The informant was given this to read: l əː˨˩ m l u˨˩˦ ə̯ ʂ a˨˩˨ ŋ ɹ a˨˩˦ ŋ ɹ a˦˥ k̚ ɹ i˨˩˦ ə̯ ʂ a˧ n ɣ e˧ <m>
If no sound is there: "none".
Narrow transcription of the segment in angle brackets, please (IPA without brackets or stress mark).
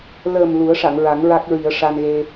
none